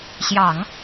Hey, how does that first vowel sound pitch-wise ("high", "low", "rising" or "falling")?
low